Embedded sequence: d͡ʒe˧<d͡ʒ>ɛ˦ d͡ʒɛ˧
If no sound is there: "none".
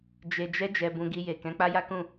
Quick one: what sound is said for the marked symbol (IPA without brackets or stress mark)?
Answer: d͡ʒ